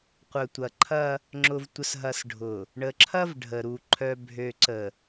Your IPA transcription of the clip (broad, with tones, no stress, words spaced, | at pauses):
qʷœ˨tʷɐ˨ǃʰɐ˦ | ŋ͡ǁʊ˨vtʷə˨sɦɐ˨s ɖʱʊ˨ | ɳə˨ǁʰɐ˦v ɖʱə˨ɾu˨ ǃʰœ˨bʱø˨ǀə˨